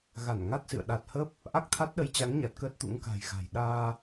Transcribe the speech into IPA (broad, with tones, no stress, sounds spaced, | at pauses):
ɣ a˧˩ n ŋ a˦˥ t̚ s ɨ̰˧˨ ə̯ ɗ a˨˩ t̚ h ə˦˥ p̚ | ʔ a˦˥ k̚ t̪ʰ a˦˥ t̚ ɗ ə˨˦ j t͡ɕ a˨˦ ŋ ɲ a˨˩ t̚ k əː˦˥ t̚ t̪ ṵ˧˥ ŋ k a̤˨˩ j ɣ a̤˨˩ j ɗ aː˧